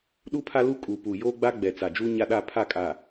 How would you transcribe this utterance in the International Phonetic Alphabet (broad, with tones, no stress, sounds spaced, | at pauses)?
ɗ u˦ pʰ a˦ l u˦ kʼ u˨ p u˨ j oː˦ ɡ͡b a˦ ɡ͡b ɛ˨ t͡s a˨ d͡ʒ u˦ ɲ a˦ ɗ a˦˨ pʰ a˦˨ kʼ a˨